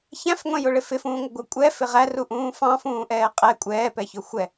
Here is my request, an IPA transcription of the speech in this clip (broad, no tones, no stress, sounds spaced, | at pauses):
ç æ̃ f ŋʷ ɛ̃ j ʊ ɭ ɪ f ɪ f ũː ŋʷ ə ɡʷ ʌ kʷʼ ɛ f ɪ ʁ æ r u ʔ ũː f ɑ̃ f ũː ʔ ɛː qʼ ɛ kʷʼ ɛː p ɛ ç ʊ xʷ ɛ